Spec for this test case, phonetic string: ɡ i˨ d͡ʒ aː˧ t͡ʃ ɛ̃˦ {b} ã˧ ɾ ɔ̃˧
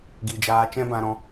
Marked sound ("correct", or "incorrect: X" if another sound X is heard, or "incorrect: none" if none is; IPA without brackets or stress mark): correct